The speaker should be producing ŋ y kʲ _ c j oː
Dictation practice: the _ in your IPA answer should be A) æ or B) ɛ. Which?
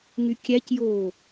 A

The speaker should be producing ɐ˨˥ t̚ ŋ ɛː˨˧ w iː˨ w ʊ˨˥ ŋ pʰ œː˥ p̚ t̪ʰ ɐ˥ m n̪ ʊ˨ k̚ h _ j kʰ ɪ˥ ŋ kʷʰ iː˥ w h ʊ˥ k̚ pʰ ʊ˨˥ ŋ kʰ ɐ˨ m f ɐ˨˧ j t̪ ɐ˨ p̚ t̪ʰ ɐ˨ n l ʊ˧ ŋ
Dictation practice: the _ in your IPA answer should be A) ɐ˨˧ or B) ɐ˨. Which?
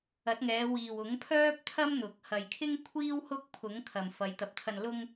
B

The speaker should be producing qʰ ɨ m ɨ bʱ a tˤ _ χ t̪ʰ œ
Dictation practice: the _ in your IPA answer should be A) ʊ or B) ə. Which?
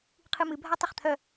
B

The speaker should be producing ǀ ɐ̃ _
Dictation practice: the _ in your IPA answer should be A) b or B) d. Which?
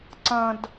B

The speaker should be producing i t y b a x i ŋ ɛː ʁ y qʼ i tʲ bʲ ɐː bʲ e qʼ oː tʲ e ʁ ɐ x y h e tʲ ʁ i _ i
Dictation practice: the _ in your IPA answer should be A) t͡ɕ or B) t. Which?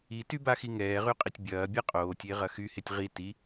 B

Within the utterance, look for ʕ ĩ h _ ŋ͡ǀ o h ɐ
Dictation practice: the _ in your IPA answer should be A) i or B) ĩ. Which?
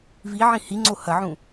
A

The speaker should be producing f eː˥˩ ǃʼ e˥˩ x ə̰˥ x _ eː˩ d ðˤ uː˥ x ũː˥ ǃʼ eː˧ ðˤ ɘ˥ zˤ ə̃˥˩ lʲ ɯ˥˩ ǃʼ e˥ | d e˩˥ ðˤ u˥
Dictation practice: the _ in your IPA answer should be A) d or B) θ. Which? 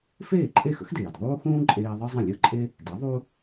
A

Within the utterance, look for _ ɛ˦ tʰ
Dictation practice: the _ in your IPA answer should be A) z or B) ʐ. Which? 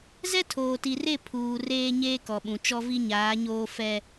A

